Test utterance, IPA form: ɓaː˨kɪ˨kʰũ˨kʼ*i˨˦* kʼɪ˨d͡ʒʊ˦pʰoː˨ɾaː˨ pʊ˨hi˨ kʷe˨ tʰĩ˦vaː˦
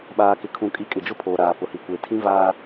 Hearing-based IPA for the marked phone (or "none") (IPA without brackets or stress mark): i˨˦